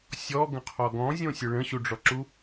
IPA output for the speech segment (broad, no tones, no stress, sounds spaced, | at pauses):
sʲ ɔ ɡ ə̃ qʰ ɔ ɡ ɔ̃ zʲ õ sʲ ə ɭ ə̃ ɕ u ɖ͡ʐ ɔ ǁ u